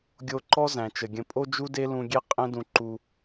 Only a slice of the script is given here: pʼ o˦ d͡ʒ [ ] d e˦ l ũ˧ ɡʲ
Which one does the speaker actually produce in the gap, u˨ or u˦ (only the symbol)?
u˦